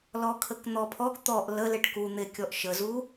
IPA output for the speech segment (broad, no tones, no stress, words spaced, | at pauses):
lɔkʰəkn̪ɔpʰɔɡ t̪ɔʔ lə leʈku n̪ekʲɔʔʃəzu